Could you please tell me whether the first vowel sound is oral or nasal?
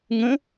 nasal